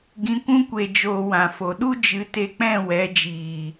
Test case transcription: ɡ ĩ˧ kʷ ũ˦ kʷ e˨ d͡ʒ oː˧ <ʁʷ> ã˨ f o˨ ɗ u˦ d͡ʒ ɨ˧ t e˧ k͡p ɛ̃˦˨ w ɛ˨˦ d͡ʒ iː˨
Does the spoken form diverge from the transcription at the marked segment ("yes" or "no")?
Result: yes